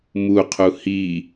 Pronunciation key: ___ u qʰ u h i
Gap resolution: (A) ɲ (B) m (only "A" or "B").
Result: B